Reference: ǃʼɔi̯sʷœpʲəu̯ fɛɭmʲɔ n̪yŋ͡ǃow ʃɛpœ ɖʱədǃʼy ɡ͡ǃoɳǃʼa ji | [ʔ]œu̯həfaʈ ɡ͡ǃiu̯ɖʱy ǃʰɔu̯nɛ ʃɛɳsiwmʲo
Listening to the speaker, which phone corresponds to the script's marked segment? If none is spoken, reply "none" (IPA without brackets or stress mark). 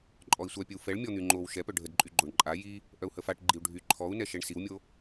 ʔ